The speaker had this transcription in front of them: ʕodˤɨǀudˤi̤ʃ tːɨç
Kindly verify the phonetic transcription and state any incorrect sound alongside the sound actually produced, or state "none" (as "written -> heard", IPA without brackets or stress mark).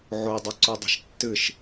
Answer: ç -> ʃ